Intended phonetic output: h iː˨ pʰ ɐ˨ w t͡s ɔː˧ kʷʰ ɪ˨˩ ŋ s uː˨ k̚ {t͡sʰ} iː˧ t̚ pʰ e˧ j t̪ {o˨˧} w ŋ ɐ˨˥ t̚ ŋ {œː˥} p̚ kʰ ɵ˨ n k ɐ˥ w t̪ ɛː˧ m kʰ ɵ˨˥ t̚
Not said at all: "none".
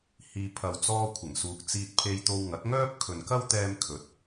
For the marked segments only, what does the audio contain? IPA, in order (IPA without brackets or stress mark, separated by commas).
t͡s, o˧, œː˥